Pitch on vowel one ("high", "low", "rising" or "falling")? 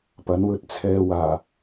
rising